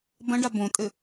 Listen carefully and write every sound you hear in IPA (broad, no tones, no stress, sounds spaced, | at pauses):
b ɐ̃ ɖ a b õ tʼ ɘ